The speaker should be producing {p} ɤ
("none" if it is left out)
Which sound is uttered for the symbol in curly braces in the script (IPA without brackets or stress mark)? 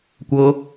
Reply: kʷ